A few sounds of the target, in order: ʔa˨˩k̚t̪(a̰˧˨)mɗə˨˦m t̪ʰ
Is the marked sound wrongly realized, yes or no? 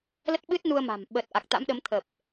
yes